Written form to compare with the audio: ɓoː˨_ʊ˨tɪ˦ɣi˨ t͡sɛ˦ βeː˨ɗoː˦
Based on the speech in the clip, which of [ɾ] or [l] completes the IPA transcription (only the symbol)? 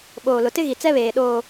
l